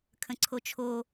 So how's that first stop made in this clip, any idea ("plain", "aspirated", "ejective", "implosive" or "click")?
aspirated